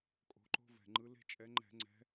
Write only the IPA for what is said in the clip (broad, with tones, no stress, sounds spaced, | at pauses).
kʼ o̤˨˦ ǃ o̤˦ v ɛ̤˨˩ ŋ͡ǃ ɯ˨˦ l e̤˦ t͡ʃʼ ɛ˨˦ ŋ͡ǃ ɛ̤˧˩˧ ŋ͡ǀ ɛ̤˨˦